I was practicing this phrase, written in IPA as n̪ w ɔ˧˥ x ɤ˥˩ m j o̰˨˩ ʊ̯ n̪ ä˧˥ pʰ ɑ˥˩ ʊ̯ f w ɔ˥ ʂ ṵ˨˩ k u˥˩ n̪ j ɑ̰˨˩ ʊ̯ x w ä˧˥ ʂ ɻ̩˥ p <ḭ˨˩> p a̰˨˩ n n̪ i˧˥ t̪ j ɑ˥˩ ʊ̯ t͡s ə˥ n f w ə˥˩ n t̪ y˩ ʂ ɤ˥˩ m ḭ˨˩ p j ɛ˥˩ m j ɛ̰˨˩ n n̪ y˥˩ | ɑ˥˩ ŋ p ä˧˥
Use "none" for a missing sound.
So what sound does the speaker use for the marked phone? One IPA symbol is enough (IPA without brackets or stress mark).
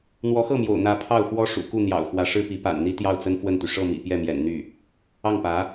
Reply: i˧˥